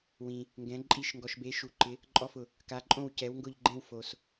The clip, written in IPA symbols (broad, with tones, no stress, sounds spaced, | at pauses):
w ĩ˨ | ŋ ɡ ɛ̃˨˥ ǃʼ i˥˧ ʃ ŋ ɡ ɔ˨ ʃ b e˨˥ ʃ u˨ ǃ ɪ˨˥ | ǃʼ ɔ˥˧ f ʊ˨ | k a˨˥ ǃʼ õ˥˧ w c ɛ˨˥ w ŋ ɡ ʊ˥˧ ʎ ɡ͡ǃ ẽ˥˧ w f o˨ s